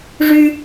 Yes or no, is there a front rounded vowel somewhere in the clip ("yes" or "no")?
yes